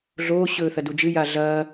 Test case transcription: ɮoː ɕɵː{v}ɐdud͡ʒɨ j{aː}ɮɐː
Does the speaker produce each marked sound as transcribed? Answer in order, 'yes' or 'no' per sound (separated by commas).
no, no